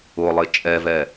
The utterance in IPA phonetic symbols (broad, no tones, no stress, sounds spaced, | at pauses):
ʊ lˠ ɪ t͡ʃʼ ɛ v ɛ